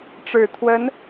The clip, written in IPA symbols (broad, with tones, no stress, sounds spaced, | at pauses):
ʈ͡ʂ ɻ̩˨˩ t̪ʰ w ə˧˥ n